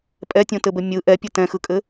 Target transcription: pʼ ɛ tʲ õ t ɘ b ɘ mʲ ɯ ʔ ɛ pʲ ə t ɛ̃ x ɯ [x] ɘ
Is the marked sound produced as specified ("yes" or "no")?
no